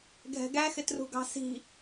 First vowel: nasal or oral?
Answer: oral